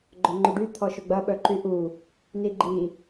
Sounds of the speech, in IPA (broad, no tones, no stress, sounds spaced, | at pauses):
ɡ͡ǃ œ ŋ͡ǃ ʏ ɖ y t̪ʰ ɔ ʃ ʊ ɡ͡b ɐ ɓ œ ǃ y ʔ u | n i ɡ͡ǃ i